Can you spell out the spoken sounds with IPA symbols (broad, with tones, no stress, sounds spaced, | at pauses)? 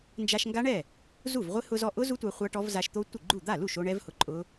n d͡ʒ a˧ ʃ ŋ ɡ a˦˥ ɳ ɛ˥˩ | z u˥˩ v ʁʷ ɪ˦˥ h ʊ˧ z ɔ˧ ʔ ʊ˦˥ z u˦˥ tʷ a˧ χʷ a˦˥ ʈ ɔ˦˥ v z a˧ ʃ t̪ o˦˥ tʷ ɪ˥˩ ɡ͡ǃ u˥˩ d̪ a˥˩ l u˥˩ ʃ o˧ ɳ ɛ˦˥ v h ʊ˧ ǃʼ ʊ˦˥